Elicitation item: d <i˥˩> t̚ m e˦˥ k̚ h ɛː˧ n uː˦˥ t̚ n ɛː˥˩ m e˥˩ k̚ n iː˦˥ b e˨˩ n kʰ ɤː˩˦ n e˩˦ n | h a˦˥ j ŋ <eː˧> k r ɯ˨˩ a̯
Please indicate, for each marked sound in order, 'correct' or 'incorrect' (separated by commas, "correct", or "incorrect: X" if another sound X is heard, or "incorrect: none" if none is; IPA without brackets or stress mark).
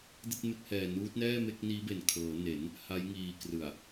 correct, incorrect: iː˧